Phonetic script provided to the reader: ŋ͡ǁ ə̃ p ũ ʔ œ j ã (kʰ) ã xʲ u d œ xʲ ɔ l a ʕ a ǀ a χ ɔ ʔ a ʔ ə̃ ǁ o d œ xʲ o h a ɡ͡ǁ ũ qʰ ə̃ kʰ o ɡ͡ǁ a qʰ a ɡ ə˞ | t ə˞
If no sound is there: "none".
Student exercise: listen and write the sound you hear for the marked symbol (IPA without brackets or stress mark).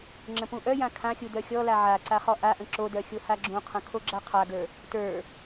kʰ